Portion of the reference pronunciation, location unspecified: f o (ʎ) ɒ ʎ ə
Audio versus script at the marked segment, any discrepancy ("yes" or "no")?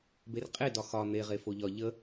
no